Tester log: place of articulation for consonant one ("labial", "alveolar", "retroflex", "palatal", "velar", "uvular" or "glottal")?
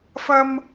labial